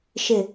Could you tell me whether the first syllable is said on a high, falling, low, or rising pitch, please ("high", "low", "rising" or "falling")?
falling